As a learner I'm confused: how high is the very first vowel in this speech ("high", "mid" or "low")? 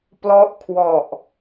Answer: mid